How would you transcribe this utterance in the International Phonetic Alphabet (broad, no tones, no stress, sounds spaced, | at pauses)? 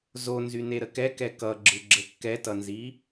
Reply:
z o n z y n e ɾ ə k ɛ k ɛ k ʌ ɡ͡ǁ ɯ ɡ͡ǁ ə kː ɛ t ʌ n z i